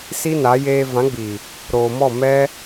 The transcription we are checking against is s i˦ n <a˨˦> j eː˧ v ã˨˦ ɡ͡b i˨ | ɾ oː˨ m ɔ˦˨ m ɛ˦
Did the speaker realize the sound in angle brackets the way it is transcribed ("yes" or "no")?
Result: yes